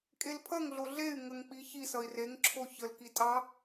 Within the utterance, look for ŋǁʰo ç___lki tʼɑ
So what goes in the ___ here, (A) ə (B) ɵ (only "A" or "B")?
A